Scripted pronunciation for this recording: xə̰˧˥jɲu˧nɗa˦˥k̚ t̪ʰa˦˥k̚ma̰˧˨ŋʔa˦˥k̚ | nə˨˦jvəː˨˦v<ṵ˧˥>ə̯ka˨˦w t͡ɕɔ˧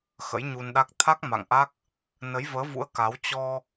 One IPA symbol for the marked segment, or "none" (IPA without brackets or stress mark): ṵ˧˥